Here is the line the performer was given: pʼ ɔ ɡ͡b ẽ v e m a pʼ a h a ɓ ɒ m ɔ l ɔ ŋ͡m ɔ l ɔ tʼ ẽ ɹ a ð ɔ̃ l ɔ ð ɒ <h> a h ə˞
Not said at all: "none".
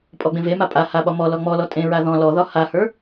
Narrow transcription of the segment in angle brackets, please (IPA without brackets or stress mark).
h